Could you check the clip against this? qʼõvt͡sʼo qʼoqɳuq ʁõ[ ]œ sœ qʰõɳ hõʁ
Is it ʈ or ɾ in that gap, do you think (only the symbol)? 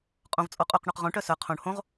ʈ